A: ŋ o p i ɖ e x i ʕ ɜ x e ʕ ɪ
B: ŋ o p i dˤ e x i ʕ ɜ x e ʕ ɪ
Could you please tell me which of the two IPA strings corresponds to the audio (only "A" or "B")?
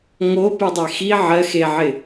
B